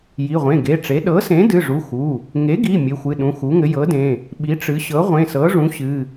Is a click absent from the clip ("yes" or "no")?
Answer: yes